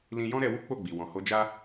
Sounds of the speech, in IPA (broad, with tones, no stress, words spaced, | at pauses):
lĩ˦ jɔ̃˦ɾɛ˧ wu˦k͡po˦˨ɡ͡bi˨ wɔ̃˨ho˧d͡ʒa˦